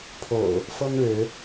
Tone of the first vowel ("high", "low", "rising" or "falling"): low